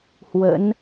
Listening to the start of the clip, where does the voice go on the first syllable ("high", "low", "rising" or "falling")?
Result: rising